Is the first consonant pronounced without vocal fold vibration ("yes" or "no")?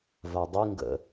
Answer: no